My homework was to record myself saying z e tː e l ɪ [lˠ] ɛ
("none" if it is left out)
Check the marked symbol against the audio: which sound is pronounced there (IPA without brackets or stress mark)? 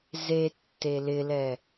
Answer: l